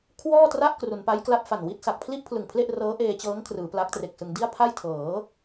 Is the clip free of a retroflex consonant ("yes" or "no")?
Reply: yes